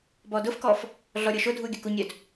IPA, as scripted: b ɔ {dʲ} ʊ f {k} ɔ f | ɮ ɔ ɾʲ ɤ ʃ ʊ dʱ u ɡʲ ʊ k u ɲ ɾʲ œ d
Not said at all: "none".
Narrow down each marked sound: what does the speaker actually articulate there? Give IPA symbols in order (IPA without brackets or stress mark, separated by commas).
d, k